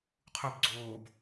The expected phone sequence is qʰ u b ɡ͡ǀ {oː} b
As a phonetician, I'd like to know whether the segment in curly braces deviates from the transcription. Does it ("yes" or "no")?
no